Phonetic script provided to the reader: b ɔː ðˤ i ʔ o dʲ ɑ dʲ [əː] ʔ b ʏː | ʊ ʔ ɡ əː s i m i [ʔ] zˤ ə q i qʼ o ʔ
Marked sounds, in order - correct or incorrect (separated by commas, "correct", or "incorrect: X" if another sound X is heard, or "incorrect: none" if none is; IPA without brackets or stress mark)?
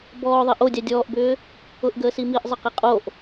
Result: incorrect: ɔː, correct